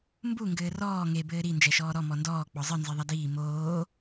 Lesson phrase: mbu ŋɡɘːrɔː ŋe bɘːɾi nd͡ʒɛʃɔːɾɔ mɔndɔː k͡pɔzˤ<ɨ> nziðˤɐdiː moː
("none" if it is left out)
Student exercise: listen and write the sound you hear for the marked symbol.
ɨ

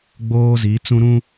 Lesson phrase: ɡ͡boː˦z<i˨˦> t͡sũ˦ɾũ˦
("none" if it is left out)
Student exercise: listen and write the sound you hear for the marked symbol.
i˨˦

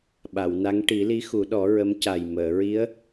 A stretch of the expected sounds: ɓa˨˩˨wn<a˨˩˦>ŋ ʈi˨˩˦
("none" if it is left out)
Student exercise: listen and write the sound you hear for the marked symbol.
a˧˥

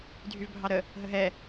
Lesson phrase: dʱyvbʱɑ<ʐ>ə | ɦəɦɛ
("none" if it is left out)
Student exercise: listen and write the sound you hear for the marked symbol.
ɾ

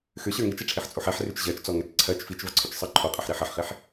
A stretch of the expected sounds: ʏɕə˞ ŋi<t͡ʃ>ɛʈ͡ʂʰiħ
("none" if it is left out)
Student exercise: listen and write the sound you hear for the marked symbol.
t͡ʃ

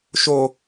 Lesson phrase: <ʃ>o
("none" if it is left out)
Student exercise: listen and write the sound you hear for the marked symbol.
ʃ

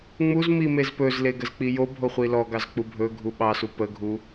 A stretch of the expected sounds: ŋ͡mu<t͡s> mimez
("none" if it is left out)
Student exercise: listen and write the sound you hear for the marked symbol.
z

